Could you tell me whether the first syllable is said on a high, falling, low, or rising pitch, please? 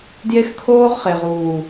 high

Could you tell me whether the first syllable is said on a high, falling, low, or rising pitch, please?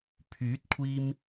rising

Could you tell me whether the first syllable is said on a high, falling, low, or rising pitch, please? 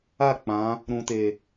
falling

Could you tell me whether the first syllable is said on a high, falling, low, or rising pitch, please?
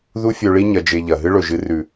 high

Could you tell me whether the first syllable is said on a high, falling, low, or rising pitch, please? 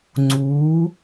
rising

